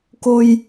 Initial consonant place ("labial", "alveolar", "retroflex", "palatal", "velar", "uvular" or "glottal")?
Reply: velar